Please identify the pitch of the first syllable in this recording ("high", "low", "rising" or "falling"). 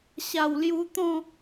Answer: low